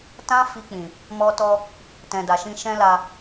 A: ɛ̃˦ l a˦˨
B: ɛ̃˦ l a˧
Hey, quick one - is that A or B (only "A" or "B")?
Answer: B